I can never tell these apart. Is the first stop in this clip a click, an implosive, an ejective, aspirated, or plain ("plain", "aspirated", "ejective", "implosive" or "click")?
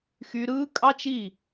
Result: ejective